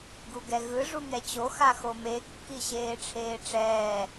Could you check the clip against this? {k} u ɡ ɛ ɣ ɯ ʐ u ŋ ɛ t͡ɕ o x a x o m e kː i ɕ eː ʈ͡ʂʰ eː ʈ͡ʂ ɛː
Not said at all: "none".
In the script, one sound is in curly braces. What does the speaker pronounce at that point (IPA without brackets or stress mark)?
ɡ